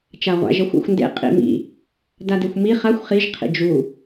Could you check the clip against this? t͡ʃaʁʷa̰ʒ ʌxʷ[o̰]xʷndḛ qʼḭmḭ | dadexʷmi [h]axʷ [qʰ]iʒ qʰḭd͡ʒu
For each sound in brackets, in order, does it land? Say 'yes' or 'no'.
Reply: no, no, no

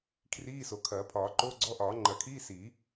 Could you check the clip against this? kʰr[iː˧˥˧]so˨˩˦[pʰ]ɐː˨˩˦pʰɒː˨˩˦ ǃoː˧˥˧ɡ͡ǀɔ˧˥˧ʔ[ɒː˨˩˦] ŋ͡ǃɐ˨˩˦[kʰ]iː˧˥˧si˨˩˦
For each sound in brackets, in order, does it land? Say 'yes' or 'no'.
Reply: yes, no, yes, yes

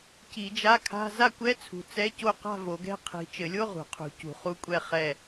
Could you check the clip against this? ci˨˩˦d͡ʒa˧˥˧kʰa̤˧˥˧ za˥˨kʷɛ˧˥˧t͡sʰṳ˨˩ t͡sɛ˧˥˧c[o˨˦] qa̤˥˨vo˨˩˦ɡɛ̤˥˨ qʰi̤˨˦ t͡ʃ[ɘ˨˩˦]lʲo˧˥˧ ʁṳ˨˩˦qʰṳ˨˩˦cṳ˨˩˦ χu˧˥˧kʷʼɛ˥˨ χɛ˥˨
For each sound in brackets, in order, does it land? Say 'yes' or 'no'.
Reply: no, yes

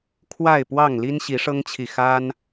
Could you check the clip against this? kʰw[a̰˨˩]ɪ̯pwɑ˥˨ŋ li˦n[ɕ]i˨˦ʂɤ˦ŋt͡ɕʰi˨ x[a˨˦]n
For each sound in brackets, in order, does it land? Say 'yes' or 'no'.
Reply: no, yes, no

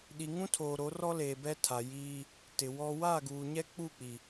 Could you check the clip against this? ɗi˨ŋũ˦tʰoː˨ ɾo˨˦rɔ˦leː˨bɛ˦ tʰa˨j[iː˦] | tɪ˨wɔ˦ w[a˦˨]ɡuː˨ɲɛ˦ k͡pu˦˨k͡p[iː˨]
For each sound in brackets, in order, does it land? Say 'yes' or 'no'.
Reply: yes, yes, no

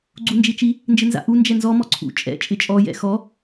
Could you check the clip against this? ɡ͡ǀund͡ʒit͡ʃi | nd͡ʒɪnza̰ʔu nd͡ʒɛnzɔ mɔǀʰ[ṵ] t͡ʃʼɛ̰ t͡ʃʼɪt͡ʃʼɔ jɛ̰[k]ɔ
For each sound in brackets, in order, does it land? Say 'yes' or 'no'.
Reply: yes, no

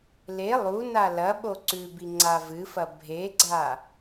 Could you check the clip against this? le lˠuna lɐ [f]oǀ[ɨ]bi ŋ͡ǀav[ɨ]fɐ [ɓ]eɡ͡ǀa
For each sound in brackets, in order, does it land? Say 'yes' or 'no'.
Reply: no, no, yes, no

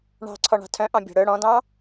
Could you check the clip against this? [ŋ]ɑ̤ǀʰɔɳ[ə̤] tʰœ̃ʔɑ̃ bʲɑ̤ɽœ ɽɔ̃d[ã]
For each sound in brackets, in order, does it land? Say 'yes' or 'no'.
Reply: no, no, no

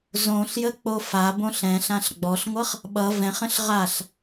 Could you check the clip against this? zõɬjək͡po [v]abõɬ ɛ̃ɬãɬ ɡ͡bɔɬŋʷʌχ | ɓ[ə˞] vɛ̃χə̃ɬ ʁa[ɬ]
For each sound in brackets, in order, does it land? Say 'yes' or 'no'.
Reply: no, no, yes

